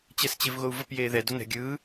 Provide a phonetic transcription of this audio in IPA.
t͡ɕ ɛ s t͡ɕ e v ɣ o u̯ v ə p j eː ð ɛ d o n ɛ̤ ɡʲ ɯː

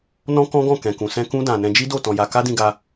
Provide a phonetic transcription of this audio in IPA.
n ɔ̃˦ k ɔ̃˦ ɡ ɔ̃˦˨ k ɛ̃˨ k ũ˨ s ɛ̃˧ k ũ˦ d ã˧ n ɛ̃˧ d͡ʒ i˦ d o˦˨ t ɔ̃˧ j a˧ k a˦ d ĩ˧ ɡ a˧

